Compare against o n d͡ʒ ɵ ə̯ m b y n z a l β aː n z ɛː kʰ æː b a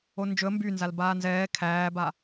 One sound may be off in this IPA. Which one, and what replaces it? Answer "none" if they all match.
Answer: β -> b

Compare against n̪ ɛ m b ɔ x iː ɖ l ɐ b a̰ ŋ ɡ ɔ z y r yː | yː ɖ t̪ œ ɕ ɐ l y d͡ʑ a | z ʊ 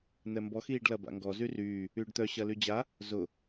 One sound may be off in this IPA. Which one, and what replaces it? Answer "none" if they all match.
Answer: none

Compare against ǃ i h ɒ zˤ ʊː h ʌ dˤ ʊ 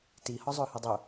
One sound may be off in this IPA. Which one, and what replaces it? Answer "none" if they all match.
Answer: ǃ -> t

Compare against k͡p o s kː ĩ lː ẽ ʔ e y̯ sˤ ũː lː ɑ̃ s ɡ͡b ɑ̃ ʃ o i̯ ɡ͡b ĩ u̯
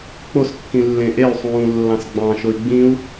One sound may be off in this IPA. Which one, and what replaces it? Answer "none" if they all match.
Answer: none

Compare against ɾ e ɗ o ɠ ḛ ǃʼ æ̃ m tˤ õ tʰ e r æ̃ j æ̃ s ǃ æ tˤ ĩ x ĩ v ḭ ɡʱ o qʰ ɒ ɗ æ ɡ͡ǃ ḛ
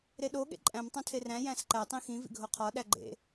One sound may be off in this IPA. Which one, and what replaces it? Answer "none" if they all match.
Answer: none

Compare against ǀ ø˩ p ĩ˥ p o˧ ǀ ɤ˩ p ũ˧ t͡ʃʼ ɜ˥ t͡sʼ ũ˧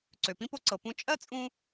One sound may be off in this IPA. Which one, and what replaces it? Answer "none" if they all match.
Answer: none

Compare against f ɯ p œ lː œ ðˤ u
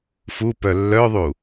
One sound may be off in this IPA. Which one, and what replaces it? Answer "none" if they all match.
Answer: ɯ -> u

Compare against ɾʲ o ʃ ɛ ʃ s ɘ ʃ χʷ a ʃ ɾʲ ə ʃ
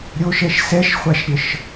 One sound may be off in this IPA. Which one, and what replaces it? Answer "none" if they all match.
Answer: ɘ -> ɛ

